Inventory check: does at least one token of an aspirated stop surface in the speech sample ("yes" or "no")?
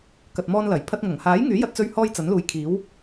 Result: yes